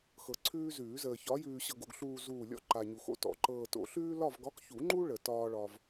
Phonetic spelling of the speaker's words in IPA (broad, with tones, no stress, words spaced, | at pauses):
xɤ˨ǀʰʉː˦ zʉː˨˩˦zəː˨çɒ˨˥ jʉː˨ɕɤ˨ɡo̰˨ɡ ɬuː˨ zuː˦˨lʲɔ̰˦ ǃa˨ɲu˨˩˦xo̰˦tɔ̰˨˩˦ ǃɤː˨ to̰˨˩˦ɬʉː˦ lɒ˦˨vɡɒ˨˥kçu˨˩˦ŋ͡ǃu˦ ɭə˨˩˦tɒː˦ɭɒ˦v